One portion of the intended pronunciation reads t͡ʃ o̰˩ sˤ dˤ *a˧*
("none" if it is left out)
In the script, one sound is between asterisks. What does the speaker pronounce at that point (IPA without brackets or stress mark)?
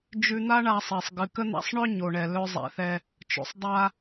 a˧